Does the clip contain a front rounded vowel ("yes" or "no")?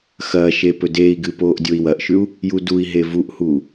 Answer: no